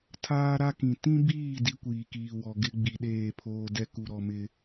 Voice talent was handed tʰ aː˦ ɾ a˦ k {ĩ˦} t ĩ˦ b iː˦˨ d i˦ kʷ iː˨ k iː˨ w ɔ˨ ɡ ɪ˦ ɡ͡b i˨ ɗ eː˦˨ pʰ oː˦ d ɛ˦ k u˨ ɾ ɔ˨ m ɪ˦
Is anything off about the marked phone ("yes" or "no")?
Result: yes